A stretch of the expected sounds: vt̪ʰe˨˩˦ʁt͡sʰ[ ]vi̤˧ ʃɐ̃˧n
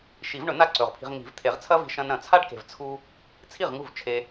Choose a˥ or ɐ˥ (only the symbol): ɐ˥